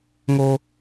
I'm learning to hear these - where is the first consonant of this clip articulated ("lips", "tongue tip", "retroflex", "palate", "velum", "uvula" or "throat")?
velum